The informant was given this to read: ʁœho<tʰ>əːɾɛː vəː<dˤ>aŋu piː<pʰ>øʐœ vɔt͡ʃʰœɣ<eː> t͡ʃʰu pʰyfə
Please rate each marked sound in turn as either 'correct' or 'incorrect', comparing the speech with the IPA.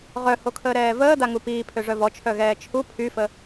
incorrect, incorrect, correct, incorrect

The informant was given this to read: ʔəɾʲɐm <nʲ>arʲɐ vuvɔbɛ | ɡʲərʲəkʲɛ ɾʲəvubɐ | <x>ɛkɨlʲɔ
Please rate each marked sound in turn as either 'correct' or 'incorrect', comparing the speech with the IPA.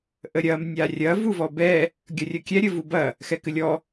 correct, correct

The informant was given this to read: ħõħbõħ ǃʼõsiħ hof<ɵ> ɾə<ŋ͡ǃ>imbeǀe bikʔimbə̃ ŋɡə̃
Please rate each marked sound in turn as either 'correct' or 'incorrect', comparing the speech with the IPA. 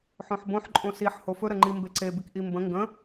correct, correct

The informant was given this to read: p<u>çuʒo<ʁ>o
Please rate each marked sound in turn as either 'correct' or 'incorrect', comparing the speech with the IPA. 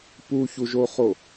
correct, incorrect

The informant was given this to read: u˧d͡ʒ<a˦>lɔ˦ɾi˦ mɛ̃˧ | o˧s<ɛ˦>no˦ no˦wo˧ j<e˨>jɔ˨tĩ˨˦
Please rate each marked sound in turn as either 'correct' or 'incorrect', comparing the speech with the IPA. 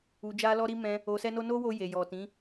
correct, correct, correct

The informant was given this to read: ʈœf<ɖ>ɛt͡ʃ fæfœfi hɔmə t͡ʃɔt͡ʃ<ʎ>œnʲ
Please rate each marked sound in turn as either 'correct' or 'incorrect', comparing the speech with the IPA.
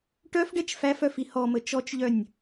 correct, correct

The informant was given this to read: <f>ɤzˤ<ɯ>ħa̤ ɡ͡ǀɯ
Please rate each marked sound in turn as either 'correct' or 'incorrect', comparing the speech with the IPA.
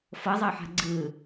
correct, incorrect

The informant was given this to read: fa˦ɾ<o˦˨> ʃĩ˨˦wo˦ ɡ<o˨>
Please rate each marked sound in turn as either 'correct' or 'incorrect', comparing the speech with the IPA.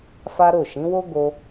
correct, incorrect

